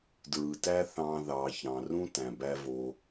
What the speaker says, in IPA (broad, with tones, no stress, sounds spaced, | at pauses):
d ɹ ɯ˨ t æ˦ θ ɑ̃˦ ð ɑ˧ ç ɑ̃˧ r ũ˦ t æ̃˨ b æ˧ v o˧